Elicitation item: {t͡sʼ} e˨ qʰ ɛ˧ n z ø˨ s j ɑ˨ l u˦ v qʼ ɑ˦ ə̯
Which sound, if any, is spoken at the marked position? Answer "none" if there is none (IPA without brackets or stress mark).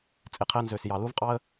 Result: t͡sʼ